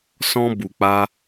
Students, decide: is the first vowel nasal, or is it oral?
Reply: nasal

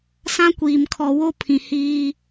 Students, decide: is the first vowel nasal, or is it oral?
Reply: nasal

